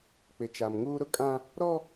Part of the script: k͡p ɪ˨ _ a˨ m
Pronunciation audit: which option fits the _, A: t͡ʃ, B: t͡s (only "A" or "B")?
A